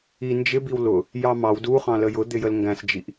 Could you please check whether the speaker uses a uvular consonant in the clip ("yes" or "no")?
yes